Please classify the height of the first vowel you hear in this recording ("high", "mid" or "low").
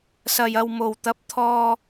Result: low